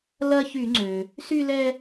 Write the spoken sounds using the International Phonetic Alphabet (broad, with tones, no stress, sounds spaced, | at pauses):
l ɐ˦ ç y˧˩˧ ŋ͡ǀ ø˩ | s y˦ l ɛ˦